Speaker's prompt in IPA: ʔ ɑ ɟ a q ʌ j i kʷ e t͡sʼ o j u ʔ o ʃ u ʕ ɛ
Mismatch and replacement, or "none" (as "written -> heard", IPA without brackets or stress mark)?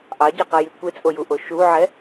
none